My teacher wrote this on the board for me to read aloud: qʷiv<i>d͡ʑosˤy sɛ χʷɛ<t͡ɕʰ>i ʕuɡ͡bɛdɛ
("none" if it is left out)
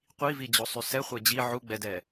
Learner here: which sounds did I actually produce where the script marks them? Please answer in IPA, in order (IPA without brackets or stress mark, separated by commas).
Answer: i, d͡ʑ